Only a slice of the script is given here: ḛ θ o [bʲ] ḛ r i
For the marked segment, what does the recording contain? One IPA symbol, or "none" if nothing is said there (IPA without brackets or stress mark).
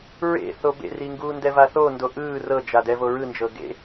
b